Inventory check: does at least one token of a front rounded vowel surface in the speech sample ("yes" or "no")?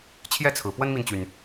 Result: yes